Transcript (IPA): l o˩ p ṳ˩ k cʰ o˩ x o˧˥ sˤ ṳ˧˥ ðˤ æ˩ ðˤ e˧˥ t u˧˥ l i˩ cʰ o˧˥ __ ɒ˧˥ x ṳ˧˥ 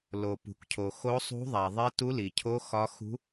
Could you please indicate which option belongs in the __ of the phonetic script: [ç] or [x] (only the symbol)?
x